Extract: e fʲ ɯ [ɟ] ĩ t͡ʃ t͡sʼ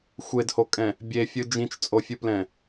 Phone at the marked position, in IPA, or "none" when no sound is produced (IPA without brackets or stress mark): d͡ʒ